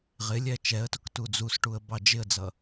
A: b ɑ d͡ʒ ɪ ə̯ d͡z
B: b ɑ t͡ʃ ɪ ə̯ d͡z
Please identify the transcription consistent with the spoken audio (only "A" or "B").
A